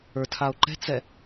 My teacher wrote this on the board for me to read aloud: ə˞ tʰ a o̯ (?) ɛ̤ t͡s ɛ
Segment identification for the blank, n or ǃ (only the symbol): ǃ